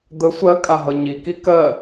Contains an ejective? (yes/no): yes